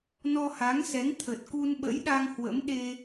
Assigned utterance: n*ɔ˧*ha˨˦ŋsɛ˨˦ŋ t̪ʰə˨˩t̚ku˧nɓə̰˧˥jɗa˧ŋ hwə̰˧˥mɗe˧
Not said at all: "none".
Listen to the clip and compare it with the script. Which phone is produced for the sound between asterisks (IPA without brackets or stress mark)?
ɔ˧